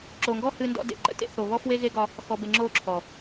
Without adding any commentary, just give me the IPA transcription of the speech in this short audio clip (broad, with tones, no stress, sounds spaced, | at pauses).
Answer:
ǁ o˨ ŋ ɡ ɔ˦ h ɨ˦ n d ɔ̰˦ d ḛ˨ ǃ ə̰˦ t ḛ˦ θ o˨ β ɔ˦ f w e˦ ɣ e˦ ɡ ɒ˦ | x ɔ˨ b e˨ ŋ͡ǁ o˦˨ ǁʰ ɔ˨